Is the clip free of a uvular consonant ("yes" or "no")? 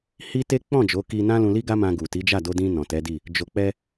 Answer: yes